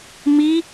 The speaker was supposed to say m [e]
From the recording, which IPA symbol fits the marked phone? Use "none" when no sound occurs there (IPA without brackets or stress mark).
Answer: i